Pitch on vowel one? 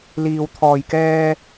low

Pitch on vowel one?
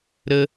high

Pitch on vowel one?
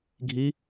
rising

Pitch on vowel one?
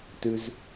low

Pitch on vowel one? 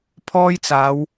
high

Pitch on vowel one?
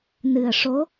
low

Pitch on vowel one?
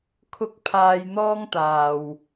high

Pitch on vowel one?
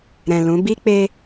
low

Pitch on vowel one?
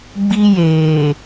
high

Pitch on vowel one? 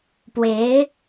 rising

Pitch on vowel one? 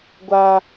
high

